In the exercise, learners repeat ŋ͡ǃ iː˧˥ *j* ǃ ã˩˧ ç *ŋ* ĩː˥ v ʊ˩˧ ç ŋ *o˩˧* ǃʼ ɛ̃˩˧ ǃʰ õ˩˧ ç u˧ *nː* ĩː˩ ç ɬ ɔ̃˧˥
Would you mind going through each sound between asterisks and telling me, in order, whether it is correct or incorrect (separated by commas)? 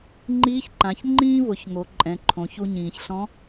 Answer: incorrect, incorrect, correct, incorrect